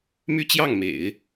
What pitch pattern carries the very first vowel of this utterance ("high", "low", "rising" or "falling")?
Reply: high